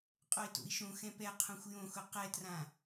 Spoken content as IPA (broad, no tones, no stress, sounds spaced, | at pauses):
qʼ o i̯ t o̰ i̯ ʃ õ x ɛ̃ p ɛ qʰ õ xʷ j õ x ʊ q ɛ t r ã